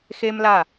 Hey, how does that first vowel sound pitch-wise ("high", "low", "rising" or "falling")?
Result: high